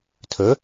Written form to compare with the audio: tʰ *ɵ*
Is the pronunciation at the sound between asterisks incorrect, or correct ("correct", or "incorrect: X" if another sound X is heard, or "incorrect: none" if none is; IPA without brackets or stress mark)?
correct